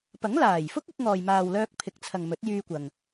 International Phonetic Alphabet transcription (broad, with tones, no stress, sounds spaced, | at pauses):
p ɐ˨˥ ŋ l aː˨˩ j f ʊ˥ k̚ ɪ˧ k̚ ŋ ɔː˨ j m aː˨ w l œː˧ k̚ pʰ ɪ˨ k̚ t͡sʰ ɐ˨ ŋ m ɵ˨˥ t̚ j yː˧ kʷ ɐ˨ ŋ